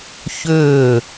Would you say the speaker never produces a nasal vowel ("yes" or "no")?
yes